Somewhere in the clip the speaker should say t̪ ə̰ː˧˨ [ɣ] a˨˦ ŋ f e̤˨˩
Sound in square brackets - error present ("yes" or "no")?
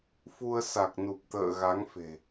no